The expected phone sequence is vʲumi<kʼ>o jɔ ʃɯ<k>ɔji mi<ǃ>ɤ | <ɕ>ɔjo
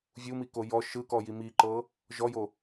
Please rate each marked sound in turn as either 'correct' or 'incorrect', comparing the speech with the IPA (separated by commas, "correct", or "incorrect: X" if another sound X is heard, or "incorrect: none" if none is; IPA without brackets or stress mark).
incorrect: k, correct, correct, incorrect: ʒ